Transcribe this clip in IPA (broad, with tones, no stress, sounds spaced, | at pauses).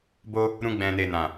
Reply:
b o˧ | ɾ ũ˧ ɡ͡b ɛ̃˨ n e˨ n ã˨